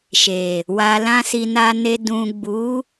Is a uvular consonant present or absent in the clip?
absent